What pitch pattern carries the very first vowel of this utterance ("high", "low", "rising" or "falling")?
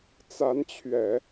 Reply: rising